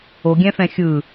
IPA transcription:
o ɡʲ ɛ̃ f ɛ̃ xʲ ɯ

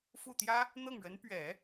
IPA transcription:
f u˥˩ t̪ j ä˥ | n̪ ɤ˥˩ ŋ ɻ ə˧˥ n p ɥ ɛ˨˩˦

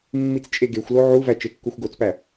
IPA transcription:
mː i t͡s t͡ʃʼ e ɡ e xʷ l o ʕ u v æ t͡ʃ e kː u xʷ ɡ o t͡s p æ

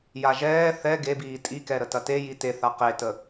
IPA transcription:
j a ʒ ɛː θ ɛ ɡ e b iː tʼ i k ɛ ɾ ə t ɐ t e j i t e θ a q e t ə

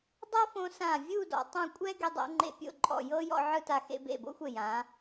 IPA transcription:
dˤ o˥ f õ˧ s ã˧˩ vʲ u˥˧ d ɔ̰˩˧ tˤ õ˥˧ kʷʼ ɛ˥ ɡ e˧ dˤ o̰˩˧ ŋ͡ǃ ḛ˧ pʲ o̰˥˧ ǃʼ ɔ̰˧˩ j ɤ˥ j ɔ̰˥˧ ʕ ɯ˥˧ t a˧ x ḛ˧ b ḛ˧˩ b o̰˥ xʷ e˧˩ j ã˩˧

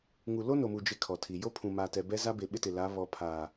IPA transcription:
ŋ u˨ l o˦ n o˨ m u˨ d͡ʒ e˦ kʰ ɔ˨ tʰ i˨ j o˦ pʰ ũ˨ m aː˨ t ɛ˨ b ɛ˦ z a˦ b e˨ ɓ ɪ˦ t ɪ˨ l a˨˦ β ɔ˨ pʰ aː˨

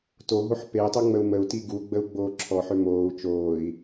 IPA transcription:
t o ɦ o ħ p e i̯ tˤ u ŋ͡m ə u̯ m ə u̯ t i ɡ u ɡ͡b ə u̯ ɡ͡b oː ǁʰ ɔ ħ ø m oː u̯ t͡ʃ oː i̯

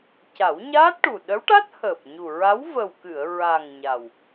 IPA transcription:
c a˨˩˦ w ɲ aː˦˥ t̚ ʈ u˨˩ ɗ ə˧˥ w ʈ a˦˥ t̚ h əː˨˩ p̚ ɲ u˨˩ ɹ a˧˥ w v ə˨˩ w k ɨ˨˩˨ ə̯ ɹ a˨˩ ŋ ɲ a˨˩ w

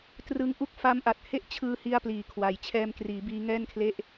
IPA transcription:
t r ɯ˧ ŋ ʔ u˥˩ k̚ f a˦˥ m ʔ a˨˩ t̚ h e˥˩ ʔ t͡ɕʰ ɯː˧ h i˧ a̯ p l iː˩˦ kʰ w a˨˩ j t͡ɕʰ ɛː˧ m k r iː˩˦ b iː˦˥ ŋ ɛː˥˩ n kʰ l e˥˩ ʔ

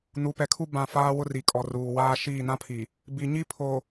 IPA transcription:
n u˨˦ p ɛ˨ kʰ u˦ b ã˦˨ f aː˦ w ʊ˦ r i˨ kʼ ɔ˨ r uː˨ w aː˦ ʃ iː˦˨ n ã˦ pʰ i˨ | b i˨ ɲ i˦ pʰ o˨

